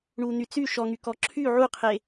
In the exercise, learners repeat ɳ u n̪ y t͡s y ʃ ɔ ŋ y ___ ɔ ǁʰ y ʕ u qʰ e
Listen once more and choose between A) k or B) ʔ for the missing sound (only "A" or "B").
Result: A